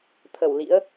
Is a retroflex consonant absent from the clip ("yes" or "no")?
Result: yes